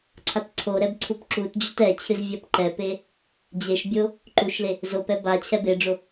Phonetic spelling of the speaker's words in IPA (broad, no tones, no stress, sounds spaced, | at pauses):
ǀʰ a t ǀʰ o ɾ ɛ b ǀʰ u p ǁ u t d͡ʑ o t ɛ t͡ɕʰ ɨ z vʲ a p ǃ ɛ p e | d͡ʑ e ʃ bʲ o | ǃ u ʃ l e | z o p ɛ b a t͡ɕʰ ɛ b e ɖ͡ʐ o